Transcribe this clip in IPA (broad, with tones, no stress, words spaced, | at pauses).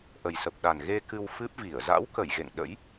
ʔə˨˩jsə˨˩p̚ ɗa˨˩nɣe˧ kɨ˧wfɨ˦˥p̚ vi˧˩ə̯ za̰˧˥w kə˧˩j ɣḛ˧˨ŋɗə̰˧˥j